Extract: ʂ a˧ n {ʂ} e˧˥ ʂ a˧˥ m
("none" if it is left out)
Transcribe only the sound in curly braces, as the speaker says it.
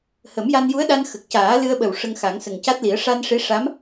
ʂ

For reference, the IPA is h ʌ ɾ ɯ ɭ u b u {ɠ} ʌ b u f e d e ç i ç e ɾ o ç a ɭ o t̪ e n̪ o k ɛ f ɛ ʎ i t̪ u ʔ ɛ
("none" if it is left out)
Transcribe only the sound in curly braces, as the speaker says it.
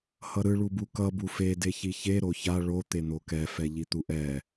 k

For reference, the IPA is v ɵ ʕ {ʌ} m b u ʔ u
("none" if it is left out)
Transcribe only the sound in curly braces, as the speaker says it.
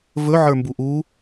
ə˞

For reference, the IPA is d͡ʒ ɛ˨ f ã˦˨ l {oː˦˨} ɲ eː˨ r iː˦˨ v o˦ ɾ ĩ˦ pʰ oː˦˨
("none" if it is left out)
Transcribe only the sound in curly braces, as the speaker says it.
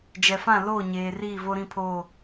oː˦˨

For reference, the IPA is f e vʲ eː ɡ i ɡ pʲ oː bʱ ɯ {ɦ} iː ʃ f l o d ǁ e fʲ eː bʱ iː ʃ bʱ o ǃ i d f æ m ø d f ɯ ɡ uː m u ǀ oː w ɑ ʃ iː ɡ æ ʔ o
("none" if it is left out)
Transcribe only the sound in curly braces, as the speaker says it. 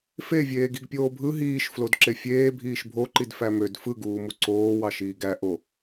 ɦ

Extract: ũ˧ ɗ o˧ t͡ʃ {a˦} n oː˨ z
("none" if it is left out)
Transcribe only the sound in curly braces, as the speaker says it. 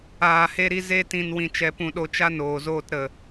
a˦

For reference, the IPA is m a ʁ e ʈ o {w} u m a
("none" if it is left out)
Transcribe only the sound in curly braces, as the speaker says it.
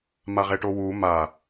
w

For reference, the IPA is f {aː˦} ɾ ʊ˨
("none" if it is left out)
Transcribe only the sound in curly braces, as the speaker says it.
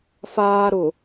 aː˦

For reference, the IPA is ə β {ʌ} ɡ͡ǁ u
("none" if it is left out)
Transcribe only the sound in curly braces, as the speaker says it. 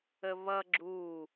ʌ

